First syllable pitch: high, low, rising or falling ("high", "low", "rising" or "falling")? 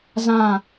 falling